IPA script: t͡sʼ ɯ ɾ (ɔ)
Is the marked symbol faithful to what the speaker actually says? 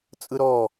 yes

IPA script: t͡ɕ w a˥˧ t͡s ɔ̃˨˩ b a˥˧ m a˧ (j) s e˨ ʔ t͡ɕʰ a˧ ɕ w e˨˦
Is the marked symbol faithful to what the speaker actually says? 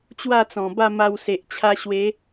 no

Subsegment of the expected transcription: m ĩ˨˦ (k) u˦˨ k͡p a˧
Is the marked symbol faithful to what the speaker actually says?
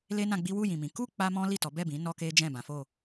yes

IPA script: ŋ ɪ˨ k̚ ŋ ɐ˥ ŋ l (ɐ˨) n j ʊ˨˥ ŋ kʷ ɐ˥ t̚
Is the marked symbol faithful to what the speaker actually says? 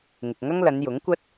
no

